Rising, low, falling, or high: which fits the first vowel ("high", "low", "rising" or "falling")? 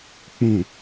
low